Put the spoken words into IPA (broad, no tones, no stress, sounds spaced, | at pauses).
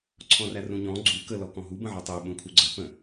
ǀʰ ɔ̃ r æ r ũ ɲ ɔ̃ ɡ͡ǀ u k ə l ɔ k ɔ̃ ɦ u b ə̃ ʕ ɔ tˤ e ɓ ũ kʰ u ɡ͡ǀ ʌ p ə̃